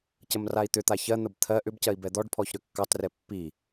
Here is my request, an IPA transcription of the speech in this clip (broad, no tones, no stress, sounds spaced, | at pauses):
c ə m r a i̯ t̪ ʏ t̪ a ç ɜ n̪ ə b t̪ʰ ɜ ʔ ʏ b c ɜ i̯ b ɛ d̪ ɔ ɖ pʰ ɔ ç ɾ ʏ kː ɑ t r ɛ pː i